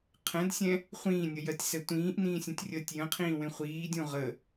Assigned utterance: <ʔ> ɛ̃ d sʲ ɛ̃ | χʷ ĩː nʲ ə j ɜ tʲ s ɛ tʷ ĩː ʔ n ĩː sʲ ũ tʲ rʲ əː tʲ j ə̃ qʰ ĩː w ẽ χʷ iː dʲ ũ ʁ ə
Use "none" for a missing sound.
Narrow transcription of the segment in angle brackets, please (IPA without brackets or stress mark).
qʰ